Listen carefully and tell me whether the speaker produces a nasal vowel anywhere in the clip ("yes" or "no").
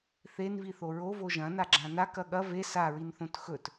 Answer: yes